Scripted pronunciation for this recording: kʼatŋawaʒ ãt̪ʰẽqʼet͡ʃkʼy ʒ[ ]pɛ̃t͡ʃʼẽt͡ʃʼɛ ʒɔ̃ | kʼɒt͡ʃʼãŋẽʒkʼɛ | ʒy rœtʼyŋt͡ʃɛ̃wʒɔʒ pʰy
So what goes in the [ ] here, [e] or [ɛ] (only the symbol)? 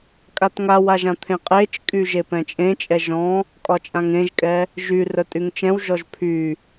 e